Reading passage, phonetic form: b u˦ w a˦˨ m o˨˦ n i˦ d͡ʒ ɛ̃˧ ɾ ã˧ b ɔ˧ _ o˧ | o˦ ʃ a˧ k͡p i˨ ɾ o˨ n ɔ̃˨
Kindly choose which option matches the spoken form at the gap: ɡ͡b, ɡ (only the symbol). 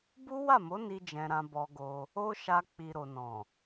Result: ɡ